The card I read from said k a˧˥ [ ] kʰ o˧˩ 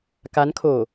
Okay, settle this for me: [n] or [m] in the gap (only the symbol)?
n